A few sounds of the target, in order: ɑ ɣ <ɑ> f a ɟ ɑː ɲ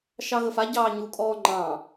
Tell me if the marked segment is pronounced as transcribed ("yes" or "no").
no